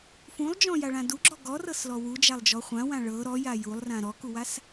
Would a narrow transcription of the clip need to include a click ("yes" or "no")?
yes